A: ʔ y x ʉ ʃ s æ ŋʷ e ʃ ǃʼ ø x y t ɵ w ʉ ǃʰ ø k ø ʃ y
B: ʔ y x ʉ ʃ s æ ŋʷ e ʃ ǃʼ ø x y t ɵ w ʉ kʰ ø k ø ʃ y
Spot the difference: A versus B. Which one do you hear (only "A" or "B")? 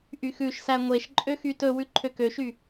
A